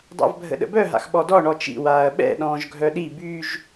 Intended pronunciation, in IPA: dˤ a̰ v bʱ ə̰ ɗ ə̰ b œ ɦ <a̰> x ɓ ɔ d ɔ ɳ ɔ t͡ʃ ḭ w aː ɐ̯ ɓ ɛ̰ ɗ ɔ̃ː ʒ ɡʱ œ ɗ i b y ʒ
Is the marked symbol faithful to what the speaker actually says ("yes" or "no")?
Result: yes